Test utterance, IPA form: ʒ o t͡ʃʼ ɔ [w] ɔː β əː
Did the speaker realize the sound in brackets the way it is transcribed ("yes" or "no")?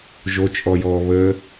no